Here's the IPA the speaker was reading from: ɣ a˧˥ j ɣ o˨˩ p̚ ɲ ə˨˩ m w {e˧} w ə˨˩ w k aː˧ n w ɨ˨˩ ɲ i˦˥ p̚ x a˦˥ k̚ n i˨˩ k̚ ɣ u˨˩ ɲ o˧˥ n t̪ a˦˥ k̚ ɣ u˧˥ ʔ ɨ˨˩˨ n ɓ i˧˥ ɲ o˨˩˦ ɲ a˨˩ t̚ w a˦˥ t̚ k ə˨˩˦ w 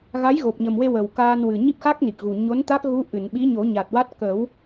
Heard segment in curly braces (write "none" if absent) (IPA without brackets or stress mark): e˧